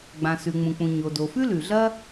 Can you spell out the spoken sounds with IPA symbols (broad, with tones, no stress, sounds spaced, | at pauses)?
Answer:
ɡ͡b ã˩ s ʉ˩ ŋ͡m ũ˩ k͡p ũ˩ ɲ o˩ d o˩ f ʉ˥ l ʉ˩ ɮ ɐ˥